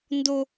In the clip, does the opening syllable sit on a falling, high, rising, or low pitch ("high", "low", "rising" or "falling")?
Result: high